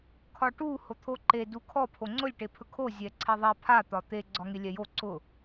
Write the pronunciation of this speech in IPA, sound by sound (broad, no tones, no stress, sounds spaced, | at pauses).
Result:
kʰ ɒ ʈ u h o t̪ʰ o ǃ e d u kʰ ɔ pʰ o ŋ͡ǀ ʊ lʲ ʈ e pʰ ɵ kʰ o zʲ ɛ ǀʰ ɛ ðˤ ɛ pʰ a t̪ ɒ t̪ e ɡ͡ǀ ɒ ŋ e lʲ ɛ j o ǀ ʊ